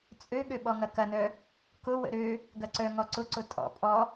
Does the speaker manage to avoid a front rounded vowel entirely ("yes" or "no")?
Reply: no